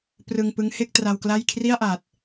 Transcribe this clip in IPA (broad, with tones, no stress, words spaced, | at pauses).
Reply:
prɯ˧ŋpɯ˦˥ŋhe˥˩k̚ tra˧wkla˥˩j kʰri˥˩a̯ʔa˨˩t̚